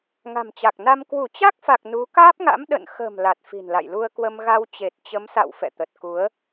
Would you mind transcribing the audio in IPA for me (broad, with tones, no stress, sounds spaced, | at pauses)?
ŋ a̤˨˩ m t͡ɕ a˨˩ k̚ n a˧ m k w u˧˩ t͡ɕ a˦˥ k̚ f a˨˩ k̚ n u˨˦ k aː˦˥ p̚ ŋ a̰˧˥ m ɗ ə̰˧˨ n x ə̤˨˩ m l a˨˩ t̚ f i̤˨˩ n l a̰˧˨ j l u˧ ə̯ k w ə˧ m ɣ a˧ w t͡ɕ e˨˩ t̚ t͡ɕ ə˨˦ m s a̰˧˨ w f ɛ̰˧˨ t̪ ə˨˩ t̚ k u˨˦ ə̯